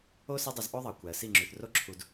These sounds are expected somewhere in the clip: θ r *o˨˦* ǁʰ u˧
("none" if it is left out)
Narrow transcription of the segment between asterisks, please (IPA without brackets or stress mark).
o˦